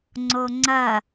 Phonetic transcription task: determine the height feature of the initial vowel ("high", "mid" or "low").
mid